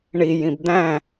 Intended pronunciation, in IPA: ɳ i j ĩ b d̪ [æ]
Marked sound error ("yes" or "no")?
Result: yes